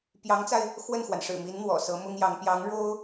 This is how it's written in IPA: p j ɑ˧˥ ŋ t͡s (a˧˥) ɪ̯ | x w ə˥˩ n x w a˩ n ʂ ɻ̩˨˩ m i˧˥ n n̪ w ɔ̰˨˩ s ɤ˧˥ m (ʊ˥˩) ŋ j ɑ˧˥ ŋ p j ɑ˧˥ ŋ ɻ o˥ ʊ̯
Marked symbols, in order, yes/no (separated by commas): no, no